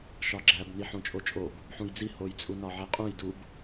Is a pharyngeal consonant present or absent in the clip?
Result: present